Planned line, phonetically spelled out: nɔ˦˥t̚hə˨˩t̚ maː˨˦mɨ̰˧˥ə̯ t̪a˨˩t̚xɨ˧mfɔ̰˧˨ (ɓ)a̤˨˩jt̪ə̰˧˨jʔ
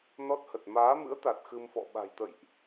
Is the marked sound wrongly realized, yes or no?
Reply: no